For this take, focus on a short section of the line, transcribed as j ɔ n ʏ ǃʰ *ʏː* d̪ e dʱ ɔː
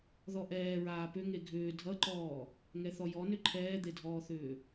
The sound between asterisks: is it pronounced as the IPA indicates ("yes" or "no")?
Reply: no